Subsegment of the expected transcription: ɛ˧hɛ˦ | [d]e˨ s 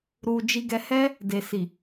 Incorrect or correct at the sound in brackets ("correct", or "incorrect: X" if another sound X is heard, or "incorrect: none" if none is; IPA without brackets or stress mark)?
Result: correct